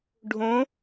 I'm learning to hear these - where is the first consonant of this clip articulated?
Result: retroflex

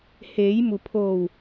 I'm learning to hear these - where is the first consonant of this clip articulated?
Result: throat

